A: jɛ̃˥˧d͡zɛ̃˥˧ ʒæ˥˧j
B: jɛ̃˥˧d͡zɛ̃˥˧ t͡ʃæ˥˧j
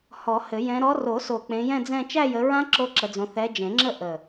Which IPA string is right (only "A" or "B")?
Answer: B